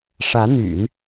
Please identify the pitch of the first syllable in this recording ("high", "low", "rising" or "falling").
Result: rising